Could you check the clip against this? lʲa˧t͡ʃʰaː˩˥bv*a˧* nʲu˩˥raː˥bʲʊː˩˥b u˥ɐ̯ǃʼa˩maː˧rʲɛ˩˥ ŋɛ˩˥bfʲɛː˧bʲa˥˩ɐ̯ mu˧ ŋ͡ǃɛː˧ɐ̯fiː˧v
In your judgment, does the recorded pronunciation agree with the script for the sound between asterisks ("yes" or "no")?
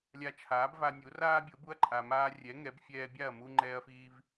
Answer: yes